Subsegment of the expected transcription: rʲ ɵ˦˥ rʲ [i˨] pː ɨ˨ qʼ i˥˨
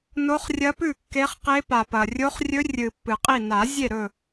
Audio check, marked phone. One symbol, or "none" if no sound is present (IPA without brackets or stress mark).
ɨ˨